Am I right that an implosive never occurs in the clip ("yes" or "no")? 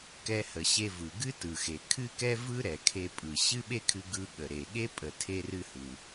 no